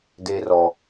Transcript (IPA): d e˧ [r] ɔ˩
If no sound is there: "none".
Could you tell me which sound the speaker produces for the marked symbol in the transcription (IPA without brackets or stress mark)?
r